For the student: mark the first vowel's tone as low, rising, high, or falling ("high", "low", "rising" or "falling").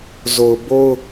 low